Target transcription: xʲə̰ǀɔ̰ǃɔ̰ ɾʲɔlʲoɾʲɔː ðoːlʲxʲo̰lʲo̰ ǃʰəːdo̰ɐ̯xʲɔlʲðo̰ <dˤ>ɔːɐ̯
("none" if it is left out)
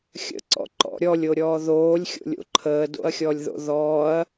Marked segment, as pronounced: ð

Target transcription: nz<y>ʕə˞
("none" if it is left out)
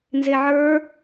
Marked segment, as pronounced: e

